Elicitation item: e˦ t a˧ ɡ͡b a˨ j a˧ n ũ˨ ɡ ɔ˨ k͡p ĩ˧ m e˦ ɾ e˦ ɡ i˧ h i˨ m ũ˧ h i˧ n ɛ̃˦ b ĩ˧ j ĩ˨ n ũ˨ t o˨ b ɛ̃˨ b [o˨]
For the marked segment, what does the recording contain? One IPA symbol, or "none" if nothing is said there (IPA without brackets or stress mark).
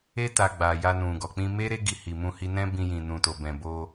o˧